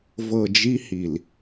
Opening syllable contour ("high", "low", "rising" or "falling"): low